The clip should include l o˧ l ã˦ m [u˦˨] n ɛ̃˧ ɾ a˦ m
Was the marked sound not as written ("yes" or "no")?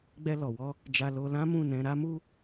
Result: yes